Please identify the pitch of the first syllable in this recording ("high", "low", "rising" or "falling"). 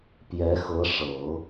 rising